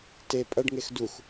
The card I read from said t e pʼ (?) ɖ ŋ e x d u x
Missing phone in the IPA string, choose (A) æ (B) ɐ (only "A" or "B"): B